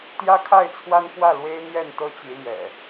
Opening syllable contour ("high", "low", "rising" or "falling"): high